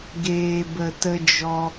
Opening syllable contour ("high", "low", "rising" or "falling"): low